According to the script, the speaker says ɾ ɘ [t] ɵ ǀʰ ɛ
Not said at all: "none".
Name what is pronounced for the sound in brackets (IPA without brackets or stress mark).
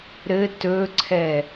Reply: t